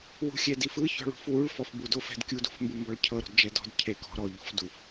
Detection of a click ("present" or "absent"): absent